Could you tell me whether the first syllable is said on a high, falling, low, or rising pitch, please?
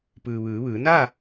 low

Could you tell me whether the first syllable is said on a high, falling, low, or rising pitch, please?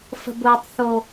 high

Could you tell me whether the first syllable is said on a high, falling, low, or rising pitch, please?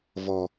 high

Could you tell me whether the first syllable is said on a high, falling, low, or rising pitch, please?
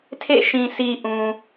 falling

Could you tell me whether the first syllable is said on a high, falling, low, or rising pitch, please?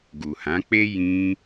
low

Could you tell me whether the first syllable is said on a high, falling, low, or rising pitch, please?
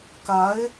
rising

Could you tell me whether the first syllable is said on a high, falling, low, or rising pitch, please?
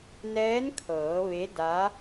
rising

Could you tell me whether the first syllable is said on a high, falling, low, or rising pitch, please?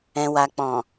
low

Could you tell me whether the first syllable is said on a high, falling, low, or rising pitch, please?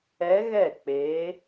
rising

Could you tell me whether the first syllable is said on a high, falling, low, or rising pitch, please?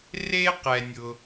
high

